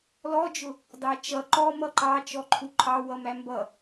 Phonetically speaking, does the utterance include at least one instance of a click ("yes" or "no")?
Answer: yes